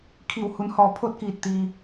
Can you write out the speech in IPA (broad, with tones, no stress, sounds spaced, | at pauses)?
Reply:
kʰ i˧˩ w h u˩˧ n h ɔː˧˩ pʰ o˥˨ t̚ k iː˧˩ t̚ t̪ iː˩